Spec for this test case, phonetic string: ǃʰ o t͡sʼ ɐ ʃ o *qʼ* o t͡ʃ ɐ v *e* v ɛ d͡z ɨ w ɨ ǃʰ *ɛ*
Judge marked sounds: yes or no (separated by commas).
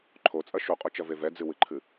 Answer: yes, yes, no